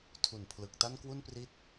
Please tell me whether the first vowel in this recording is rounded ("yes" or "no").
yes